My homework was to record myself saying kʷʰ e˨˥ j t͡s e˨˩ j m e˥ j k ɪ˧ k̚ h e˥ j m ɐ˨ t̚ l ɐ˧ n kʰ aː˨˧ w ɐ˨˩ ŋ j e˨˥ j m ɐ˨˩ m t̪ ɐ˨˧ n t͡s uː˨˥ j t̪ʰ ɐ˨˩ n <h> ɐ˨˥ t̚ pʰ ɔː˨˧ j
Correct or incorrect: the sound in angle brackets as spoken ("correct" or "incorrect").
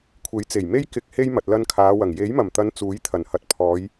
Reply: correct